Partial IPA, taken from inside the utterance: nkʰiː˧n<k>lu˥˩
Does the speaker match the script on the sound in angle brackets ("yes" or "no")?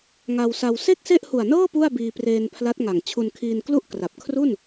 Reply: yes